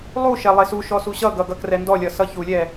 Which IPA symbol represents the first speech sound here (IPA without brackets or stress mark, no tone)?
lˠ